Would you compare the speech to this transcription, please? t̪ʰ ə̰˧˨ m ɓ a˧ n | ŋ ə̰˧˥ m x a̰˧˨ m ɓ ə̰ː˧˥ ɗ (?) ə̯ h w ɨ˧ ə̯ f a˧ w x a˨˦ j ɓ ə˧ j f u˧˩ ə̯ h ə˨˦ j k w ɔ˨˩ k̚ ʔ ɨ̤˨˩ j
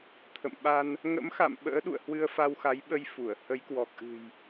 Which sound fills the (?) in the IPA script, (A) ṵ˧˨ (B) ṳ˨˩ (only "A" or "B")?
A